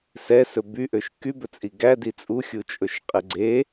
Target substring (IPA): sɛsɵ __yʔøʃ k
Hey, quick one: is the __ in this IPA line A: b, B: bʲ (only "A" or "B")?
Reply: A